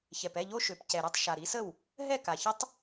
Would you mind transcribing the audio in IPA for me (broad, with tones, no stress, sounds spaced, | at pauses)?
ç ɛ˨˩ p ɛ˥˩ ʎ o˦˥ ʃ ø˨˩ p c ɛ˨˩ ɾ i˥˩ tˤ ʃ a˨˩ ɾ i˩˥ s ə˥˩ w | ɦ ɛ˥˩ k a˨˩ ç ə˦˥ tˤ